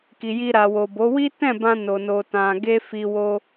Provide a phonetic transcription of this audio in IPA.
k i˨ j i˧ ɾ a˨ w o˨ b o˨˦ w i˦ t ɛ̃˦˨ b ã˧ n o˨ n o˨ t ã˨ ɡ e˧ f i˧ w o˦

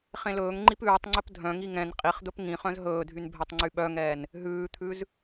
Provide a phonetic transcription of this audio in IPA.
χ ẽ l ɵː ŋ ŋ͡ǃ i p ʉː tˤ ŋ͡ǀ ɵ p dʱ œ̃ ŋ i ŋ ɛ̃ n qʼ i χ d̪ ɵ p ŋ ĩ χ œ̃ z ɦ ɵː dʱ y n bʱ ɛ tˤ ŋ͡ǀ y ɓ œ ŋ ɛː n | ɦ ʉː t̪ʰ ʉ z

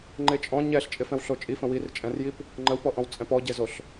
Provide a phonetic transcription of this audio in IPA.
ŋ͡ǃ e t͡ʃʼ ɔ̃ ɲ ɛ ɬ t͡ʃʼ ɪ f ɛ̃ w ɬ o t͡ʃʼ i f ə̃ w i r t͡ʃʼ ɛ̃ r j i p | ŋ͡ǃ ə w p ɔ ʔ ɔ̃ w t͡sʼ ɛ̃ p ɔ ɟ e z o ɬ

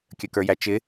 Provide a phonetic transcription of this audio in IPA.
kʲ ə k ə˞ j æ t͡ʃ ɪ

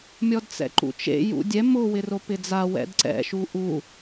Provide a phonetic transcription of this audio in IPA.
mʲ ɔ d t͡s ɛ̰ ǃ ṵ t͡ʃ ḛ j ṵ dʲ ɛ m ʊ w ɪ r o p ɪ d͡z a w ɛ̰ d ǀ ɛ̰ ʃ u ʔ u

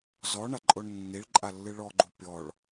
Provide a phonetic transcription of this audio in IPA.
z ɔ ɳ a ǃʼ o ɳ nː i ɭ ǃʼ a lː ɨ ɭ ɔ ɡ͡ǃ u pʲ ɔ ɭ

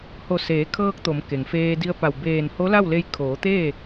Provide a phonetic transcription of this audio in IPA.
h o˧˩ s eː˩˧ kʰ ɤː˧ k̚ t̪ o˩˧ m k e˩ ŋ f eː˧ d i˧ ə̯ p a˧˩ w b eː˧˩ n h o˧˥ l a˥˨ w l e˧ j kʰ oː˩˧ t̪ eː˥˨

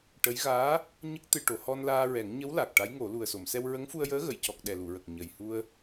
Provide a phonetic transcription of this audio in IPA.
ʈ ə˧˥ j ɣ aː˧˥ | ɲ ə˦˥ k̚ t̪ ɨ˧ ʈ o˨˩˦ h ɔ˧ n l aː˧ ɹ ɛ˨˩˦ ŋ ɲ ə˧˥ w l a˨˩ k̚ ʈ a˧˥ j ŋ o˨˩˦ l u˨˩ ə̯ s o˨˩˨ m s ɛ˧ w ɹ ə˧˥ ŋ f u˧ ə̯ j əː˧˥ ɣ ə˨˩˨ j c ɔ˨˩ k̚ ɗ ɛ˨˩ l u˨˩˨ ɹ ə˨˩ k̚ ɲ ə˨˩ j h u˧ ə̯

